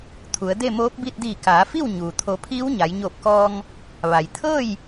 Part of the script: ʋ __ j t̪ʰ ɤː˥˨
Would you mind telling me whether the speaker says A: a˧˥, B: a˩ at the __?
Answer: B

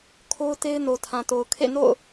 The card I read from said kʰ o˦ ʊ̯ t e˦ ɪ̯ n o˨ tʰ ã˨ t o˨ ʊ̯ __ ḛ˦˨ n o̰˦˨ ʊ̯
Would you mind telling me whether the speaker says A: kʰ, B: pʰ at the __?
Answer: A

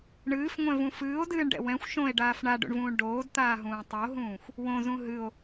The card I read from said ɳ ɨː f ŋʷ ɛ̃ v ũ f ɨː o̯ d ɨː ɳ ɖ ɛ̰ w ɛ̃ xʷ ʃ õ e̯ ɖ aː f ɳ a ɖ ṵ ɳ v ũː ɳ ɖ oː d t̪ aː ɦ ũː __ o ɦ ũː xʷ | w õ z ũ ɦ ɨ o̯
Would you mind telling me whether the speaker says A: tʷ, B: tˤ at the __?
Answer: B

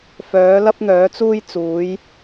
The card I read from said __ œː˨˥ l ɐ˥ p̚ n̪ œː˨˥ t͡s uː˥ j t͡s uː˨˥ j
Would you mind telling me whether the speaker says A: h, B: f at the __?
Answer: B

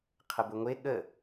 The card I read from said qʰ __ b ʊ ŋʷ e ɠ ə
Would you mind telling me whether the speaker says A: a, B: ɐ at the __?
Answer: B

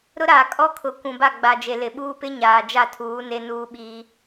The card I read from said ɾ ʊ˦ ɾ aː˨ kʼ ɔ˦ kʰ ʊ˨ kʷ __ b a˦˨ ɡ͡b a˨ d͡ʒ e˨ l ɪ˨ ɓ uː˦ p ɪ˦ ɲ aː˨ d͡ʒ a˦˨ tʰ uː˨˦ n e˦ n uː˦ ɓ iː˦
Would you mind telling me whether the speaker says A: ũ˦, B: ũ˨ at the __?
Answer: B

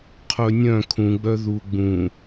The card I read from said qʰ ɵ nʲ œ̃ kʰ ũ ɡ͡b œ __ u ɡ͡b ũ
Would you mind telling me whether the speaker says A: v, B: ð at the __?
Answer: B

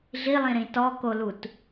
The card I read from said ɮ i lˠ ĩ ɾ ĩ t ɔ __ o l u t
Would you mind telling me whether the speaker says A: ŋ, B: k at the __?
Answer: B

